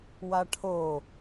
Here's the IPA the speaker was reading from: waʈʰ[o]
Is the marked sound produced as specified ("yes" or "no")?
yes